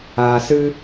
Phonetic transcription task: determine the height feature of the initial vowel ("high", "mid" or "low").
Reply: low